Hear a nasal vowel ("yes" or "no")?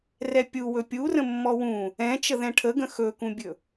yes